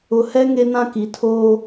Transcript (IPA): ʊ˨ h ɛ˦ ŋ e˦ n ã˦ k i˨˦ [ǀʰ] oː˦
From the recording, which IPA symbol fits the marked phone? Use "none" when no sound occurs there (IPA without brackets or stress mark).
tʰ